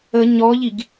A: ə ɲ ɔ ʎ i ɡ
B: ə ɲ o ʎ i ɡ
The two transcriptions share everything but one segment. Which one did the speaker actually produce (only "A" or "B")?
A